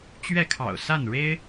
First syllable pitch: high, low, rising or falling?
falling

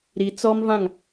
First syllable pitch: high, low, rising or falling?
low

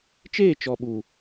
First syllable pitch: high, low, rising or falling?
falling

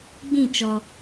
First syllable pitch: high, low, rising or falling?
falling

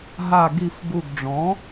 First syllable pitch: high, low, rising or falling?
low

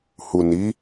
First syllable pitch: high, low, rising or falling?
low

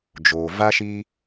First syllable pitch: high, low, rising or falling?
low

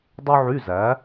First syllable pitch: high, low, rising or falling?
high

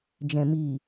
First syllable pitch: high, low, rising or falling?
low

